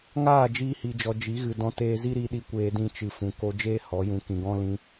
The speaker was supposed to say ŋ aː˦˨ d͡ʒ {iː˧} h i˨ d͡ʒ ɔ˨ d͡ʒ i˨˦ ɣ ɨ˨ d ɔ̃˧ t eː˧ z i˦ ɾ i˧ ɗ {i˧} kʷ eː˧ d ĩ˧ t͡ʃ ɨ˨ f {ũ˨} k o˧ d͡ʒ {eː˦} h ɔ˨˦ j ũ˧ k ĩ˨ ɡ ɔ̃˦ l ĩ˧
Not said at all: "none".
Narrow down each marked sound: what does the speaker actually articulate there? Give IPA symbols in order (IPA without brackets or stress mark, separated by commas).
iː˧, i˧, ũ˨, eː˦